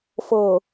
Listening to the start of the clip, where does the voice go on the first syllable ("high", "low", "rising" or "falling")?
low